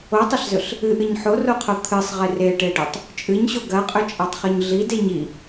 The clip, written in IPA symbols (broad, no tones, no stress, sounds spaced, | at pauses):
o tˤ ɐ ɬ z ɵ ɬ | ɨ ʔ ɨ ɲ ħ o r o qʰ o t̪ʰ ɨ sˤ ʁ e r e ʈ e ɖ ɵ tˤ | t͡ʃʼ ɨ ɲ ɕ o ɡ ɐ qʼ ɵ t͡ʃʼ a tˤ χ ɵ ɲ ɮ i d e ɲ i